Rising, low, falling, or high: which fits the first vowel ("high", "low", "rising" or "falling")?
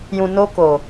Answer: low